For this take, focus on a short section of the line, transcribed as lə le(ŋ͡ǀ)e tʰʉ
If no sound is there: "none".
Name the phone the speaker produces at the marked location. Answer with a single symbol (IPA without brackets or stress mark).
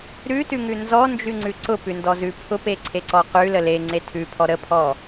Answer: ŋ͡ǀ